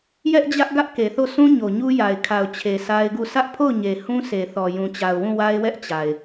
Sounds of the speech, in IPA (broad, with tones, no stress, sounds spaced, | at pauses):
j ɛ˦ ʔ d͡ʑ ä˦ ʔ ɡ ä˦ ʔ k e˨ θ o˦˨ s ũ˦ ɲ o˨ ɲ u˦ j a˨ ɪ̯ kʰ a˨ ʊ̯ t͡ɕʰ e˨ s a˦ ɪ̯ ɡ u˦˨ s ä˦ ʔ pʰ o˦˨ ʊ̯ ɲ e˨ h ũ˦ s e˨ θ ɔ˨ j ũ˨ t͡ɕ a˨ ʊ̯ w ũ˦˨ w a˦ ɪ̯ w ɛ˦ ʔ t͡ɕ a˨ ɪ̯